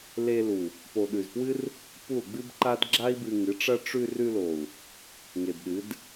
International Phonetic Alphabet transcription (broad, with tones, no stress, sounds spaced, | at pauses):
l e˧ l u˨ | p o˨ ɗ ʉ˨ z p w ɨ˦ r | p u˦˨ l ɡ͡b ɨ˦ b ǃ a˦ d ɡ͡ǁ a˦ i̯ b ɨ˧ ŋ ɨ˨˦ ʈ͡ʂ ɐ˦ ʈ͡ʂ ʉ˧ r ʉ˧ l o˨ u̯ | ŋ e˨ b ɗ ɨ˨˦ d